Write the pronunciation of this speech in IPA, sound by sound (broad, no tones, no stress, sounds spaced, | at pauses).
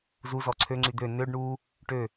z u z ɔ ǀʰ ø ŋ͡ǀ y d̪ ø n ø ɖ ɳ u | ʈ ø